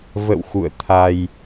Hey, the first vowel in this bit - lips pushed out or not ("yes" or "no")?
no